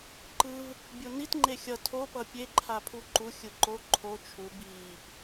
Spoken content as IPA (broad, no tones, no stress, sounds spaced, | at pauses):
ǃ ɯ v | bʲ o n i t ŋ͡ǃ e xʲ ʌ tʰ o p ʌ pʲ e ǃʰ a pʰ u ǃ u xʲ ɯ ǃ o ǃʰ o t͡ʃʰ u b iː p